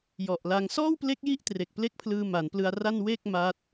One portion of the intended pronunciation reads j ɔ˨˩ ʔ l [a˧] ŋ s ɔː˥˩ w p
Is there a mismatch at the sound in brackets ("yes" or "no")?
no